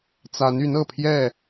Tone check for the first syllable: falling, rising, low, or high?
rising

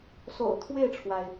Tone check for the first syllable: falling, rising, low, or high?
low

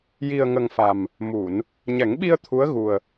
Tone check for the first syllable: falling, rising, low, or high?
low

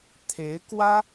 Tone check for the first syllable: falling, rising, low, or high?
rising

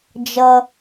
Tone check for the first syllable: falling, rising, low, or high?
high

